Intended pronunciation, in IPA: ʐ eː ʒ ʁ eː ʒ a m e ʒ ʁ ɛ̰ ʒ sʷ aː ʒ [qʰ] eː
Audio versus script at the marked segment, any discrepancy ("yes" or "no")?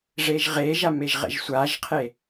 no